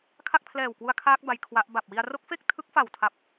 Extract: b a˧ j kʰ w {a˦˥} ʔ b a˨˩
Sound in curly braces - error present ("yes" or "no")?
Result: no